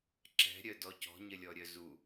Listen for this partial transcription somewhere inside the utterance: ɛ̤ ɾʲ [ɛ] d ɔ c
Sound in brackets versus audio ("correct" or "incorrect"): incorrect